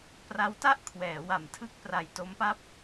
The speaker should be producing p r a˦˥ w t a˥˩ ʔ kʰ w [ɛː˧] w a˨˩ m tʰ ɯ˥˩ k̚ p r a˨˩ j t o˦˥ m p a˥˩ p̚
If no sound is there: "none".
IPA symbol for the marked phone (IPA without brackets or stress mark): ɛː˩˦